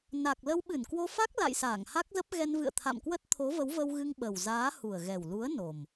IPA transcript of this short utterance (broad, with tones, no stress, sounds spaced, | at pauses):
n a˨˩ k̚ l ə˧ w ɓ ɨ˧˩ n k w o˧ f a˦˥ k̚ l a̰˧˨ j s aː˧˩ ŋ h a˦˥ k̚ z ə˦˥ p̚ ɣ ɛ˧ n v ɨ̰˧˨ ə̯ t̪ʰ a̰˧˨ m k w ə˦˥ t̚ t̪ʰ o˨˦ v ə˨˦ w v ə˧ w ɣ ɨ˧ ŋ ɓ ə˨˩ w z aː˨˦ h u˨˩ ə̯ ɣ ɛ˨˩ w l u˨˦ ə̯ n o˨˩ m